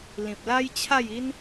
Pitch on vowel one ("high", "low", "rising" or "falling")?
low